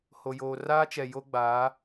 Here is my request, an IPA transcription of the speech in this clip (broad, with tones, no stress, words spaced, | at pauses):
ho˨joː˨raː˦t͡ʃɛ˨ jo˦ɡ͡baː˨˦